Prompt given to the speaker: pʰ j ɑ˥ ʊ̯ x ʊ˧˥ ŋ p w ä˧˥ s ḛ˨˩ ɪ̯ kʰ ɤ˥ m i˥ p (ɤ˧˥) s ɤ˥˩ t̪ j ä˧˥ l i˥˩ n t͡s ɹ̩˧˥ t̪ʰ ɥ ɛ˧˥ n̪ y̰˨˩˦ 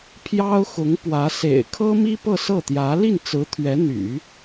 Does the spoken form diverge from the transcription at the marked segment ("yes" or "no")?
yes